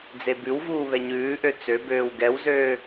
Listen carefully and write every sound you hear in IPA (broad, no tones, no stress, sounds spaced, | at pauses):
d͡z e b ʉ w v uː β ɛ ɲ ʉː ʔ ø t͡s ø b øː w ɡ ɛ w z øː